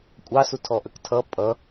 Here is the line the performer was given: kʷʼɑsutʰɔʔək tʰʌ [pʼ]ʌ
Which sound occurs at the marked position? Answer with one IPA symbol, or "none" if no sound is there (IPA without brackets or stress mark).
pʼ